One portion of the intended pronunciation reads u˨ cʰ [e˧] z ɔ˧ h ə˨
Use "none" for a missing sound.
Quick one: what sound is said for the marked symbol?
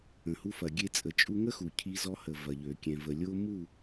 i˧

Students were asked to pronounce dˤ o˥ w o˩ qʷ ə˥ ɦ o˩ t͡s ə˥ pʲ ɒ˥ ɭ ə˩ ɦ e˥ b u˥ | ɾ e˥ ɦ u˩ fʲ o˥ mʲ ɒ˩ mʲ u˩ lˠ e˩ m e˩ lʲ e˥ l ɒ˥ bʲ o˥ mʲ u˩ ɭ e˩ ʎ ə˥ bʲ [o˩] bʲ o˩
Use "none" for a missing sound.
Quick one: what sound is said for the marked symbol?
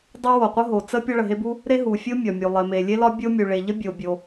o˩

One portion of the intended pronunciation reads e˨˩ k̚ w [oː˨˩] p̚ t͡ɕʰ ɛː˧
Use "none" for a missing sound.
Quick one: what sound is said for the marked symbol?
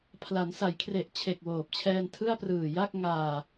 oː˨˩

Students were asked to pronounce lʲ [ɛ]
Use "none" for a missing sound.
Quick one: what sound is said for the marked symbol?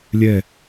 ɛ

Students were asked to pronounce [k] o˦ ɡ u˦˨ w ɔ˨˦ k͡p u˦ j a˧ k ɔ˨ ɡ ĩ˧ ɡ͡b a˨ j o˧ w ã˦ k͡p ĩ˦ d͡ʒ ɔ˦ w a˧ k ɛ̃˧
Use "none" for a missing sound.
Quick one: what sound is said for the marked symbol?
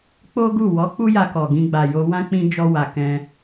k͡p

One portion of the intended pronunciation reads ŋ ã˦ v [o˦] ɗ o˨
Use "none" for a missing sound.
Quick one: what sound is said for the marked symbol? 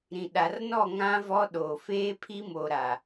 ɔ˦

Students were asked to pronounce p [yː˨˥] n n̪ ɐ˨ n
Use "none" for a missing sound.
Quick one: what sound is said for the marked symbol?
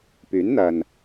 yː˨˥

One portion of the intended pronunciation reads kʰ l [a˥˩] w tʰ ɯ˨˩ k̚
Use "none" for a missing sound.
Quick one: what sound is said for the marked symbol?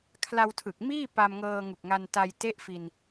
a˧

